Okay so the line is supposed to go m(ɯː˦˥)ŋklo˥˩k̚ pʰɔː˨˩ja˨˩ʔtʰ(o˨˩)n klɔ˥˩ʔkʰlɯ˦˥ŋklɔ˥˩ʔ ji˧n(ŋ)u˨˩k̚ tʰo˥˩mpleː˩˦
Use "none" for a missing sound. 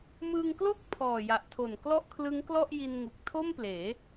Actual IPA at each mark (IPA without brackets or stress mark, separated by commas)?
ɯː˧, o˨˩, ŋ